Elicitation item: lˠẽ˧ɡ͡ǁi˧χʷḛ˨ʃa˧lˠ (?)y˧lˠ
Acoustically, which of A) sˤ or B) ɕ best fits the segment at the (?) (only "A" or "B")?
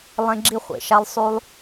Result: A